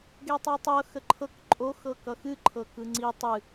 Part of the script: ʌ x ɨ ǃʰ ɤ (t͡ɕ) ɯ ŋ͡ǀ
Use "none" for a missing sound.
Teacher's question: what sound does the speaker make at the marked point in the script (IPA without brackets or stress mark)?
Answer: k